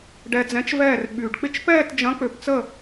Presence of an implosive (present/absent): present